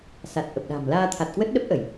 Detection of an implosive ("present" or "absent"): present